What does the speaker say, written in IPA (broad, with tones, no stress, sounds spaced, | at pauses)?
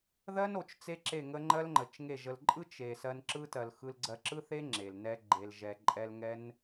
ð ɜ˦ n o˨ t͡ʃ t͡s e˦ ǁ e˦˨ ŋ ə˦ ŋ͡ǃ ɜ˦ l ŋ͡ǃ ə˨ t͡ʃ ŋ e˦˨ ʒ ə˧ l ǃʼ ɯ˦ t͡ʃ e˨ s ɜ˧ n ǁ ɯ˦ t ɜ˨ l x ɯ˧ l ɡ͡ǀ ɜ˧ ǁ ɯ˦ θ e˦ ŋ͡ǁ e˨ l n ɛ˦ ɡ͡ǃ e˧ l ʒ ɛ˧ ǃʼ ɛ˧ l ŋ ɛ˦ n